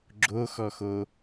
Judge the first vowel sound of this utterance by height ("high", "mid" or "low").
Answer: mid